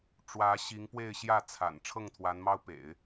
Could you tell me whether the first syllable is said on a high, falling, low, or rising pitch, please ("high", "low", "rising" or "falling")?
rising